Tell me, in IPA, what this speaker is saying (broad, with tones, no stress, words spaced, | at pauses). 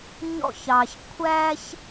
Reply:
ɲɔ̰˥˧çɑ˧ç kʷʰæ˥ç